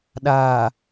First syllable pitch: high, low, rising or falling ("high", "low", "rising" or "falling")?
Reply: low